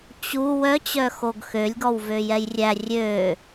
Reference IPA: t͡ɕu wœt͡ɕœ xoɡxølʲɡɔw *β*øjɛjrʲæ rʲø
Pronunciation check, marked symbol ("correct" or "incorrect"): incorrect